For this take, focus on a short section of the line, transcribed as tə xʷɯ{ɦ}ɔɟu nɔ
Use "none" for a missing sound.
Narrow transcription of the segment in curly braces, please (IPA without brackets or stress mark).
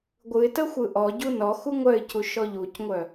ʔ